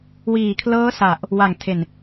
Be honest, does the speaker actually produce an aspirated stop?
yes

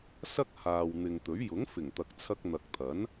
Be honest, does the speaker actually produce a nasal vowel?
no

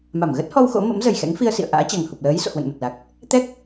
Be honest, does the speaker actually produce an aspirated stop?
no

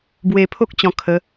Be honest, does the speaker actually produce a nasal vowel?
yes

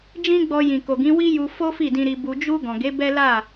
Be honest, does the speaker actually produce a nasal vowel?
yes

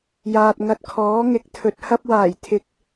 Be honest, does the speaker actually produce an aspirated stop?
yes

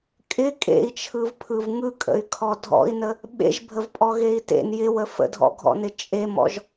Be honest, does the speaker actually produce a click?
no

